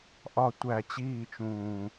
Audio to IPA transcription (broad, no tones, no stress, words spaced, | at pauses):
ʔɒ tʷæ t͡ɕiːt͡ʃũː